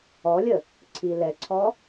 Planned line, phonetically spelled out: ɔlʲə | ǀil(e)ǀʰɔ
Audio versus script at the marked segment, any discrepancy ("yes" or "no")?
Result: yes